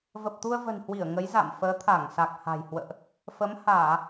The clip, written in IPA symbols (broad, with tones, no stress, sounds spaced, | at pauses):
v ə˨˩ p̚ t̪ u˧ ə̯ v ə̤˨˩ n h w i˧˩ ə̯ ŋ ə˨˦ j z a̰˧˨ m f əː˨˦ t̪ʰ a˧˩ ŋ s a˨˩ k̚ h a̤˨˩ j h w ə̰ː˧˨ ʔ | f ə˨˦ m h aː˧˩˨